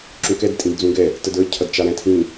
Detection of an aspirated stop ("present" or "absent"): present